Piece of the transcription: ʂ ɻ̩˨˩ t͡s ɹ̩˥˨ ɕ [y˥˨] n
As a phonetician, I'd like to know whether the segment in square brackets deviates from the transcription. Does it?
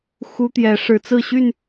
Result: no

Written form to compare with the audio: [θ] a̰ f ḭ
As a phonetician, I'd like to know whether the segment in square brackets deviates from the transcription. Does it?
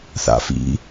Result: no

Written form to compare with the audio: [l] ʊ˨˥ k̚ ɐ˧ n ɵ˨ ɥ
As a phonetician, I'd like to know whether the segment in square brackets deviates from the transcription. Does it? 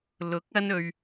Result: no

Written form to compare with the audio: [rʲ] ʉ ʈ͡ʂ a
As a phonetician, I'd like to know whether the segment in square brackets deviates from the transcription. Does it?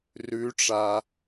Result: yes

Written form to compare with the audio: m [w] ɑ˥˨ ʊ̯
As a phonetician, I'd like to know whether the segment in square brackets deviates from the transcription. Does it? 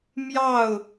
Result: yes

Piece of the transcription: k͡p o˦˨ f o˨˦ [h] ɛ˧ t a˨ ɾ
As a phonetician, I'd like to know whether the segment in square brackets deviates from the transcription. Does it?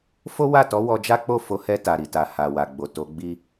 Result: no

